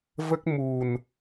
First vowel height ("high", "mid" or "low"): mid